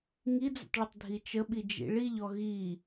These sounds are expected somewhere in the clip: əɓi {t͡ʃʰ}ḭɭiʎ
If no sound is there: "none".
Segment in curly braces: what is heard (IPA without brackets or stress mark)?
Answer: d͡ʒ